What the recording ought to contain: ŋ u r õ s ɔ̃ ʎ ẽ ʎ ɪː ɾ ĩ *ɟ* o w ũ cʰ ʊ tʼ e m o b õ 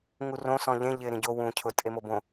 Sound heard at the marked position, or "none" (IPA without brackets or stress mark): ɟ